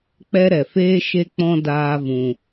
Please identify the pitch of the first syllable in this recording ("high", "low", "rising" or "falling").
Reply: high